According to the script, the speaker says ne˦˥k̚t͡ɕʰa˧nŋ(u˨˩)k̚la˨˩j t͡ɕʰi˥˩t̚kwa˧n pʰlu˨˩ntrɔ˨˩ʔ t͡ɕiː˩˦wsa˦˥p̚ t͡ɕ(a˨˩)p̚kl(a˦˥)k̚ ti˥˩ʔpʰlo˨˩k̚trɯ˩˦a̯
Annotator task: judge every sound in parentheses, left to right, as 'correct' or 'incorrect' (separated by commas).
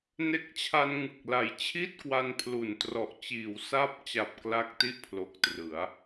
incorrect, correct, correct